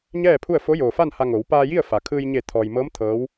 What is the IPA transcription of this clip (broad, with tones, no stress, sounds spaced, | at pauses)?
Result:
ɲ ɛː˥˨ pʰ u˥˨ ə̯ f o˧˥ j oː˩ f a˥˨ n h a˧ ŋ o˩˧ w p aː˧ j i˥˨ ə̯ f a˩˧ kʰ ɯː˧ j ɲ e˧˩ t̪ʰ ɔː˩ j m ɤː˧˥ m t̪ʰ ɤː˧˥ w